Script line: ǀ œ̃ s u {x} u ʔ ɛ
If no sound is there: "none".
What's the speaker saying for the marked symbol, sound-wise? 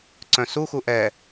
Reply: x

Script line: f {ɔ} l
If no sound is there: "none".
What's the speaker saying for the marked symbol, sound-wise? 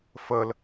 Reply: ə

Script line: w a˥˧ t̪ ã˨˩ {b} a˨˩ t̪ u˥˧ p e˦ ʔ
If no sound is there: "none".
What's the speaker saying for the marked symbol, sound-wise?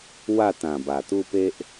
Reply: b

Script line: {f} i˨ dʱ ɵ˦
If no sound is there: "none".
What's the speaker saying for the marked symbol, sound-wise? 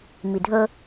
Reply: m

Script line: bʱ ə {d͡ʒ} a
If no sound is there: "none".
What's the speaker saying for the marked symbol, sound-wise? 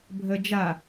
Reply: d͡ʒ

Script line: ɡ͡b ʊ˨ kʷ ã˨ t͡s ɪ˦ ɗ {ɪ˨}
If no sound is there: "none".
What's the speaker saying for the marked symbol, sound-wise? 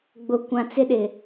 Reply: ɪ˨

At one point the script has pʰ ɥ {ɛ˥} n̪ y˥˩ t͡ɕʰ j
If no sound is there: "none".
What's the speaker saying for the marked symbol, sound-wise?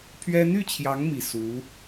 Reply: ɛ˥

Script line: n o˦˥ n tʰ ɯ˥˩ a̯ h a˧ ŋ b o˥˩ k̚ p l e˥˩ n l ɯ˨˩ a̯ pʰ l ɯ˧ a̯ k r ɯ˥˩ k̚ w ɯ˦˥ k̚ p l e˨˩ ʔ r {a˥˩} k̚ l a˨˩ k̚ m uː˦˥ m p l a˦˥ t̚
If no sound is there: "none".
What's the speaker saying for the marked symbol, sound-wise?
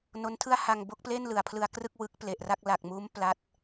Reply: a˥˩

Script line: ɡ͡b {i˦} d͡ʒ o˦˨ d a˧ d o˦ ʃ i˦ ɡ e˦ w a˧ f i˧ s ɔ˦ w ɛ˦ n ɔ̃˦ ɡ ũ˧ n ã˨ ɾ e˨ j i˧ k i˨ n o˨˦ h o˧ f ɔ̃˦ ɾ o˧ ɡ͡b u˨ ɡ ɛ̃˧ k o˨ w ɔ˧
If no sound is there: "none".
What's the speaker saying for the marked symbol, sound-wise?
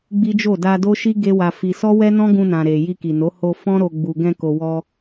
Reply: i˦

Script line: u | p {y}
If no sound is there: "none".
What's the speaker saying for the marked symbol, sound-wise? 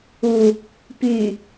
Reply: y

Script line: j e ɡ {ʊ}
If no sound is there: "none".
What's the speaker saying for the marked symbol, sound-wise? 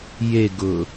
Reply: ʊ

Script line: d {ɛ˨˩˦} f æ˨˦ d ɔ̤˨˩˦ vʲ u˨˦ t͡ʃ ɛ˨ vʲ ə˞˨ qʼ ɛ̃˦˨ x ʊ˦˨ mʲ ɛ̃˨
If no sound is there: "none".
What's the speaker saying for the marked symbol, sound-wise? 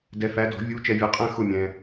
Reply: ɛ˨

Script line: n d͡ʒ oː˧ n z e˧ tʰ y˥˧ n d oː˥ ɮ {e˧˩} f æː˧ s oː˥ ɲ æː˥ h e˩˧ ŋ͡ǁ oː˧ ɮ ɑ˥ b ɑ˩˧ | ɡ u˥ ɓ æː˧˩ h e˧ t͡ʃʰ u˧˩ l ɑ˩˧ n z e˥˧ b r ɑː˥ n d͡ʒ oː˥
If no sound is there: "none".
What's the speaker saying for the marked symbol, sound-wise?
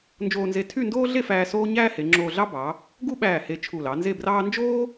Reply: e˥˧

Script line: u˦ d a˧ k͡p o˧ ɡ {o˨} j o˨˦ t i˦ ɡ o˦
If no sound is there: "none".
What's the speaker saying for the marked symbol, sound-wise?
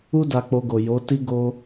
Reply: o˨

